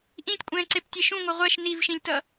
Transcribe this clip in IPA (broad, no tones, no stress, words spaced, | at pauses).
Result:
ʔĩtʲkʷʼɛ̃ːǀeptʲe ʃũŋʷʌ ʁʷɛʃ nivʃĩlʲtʌ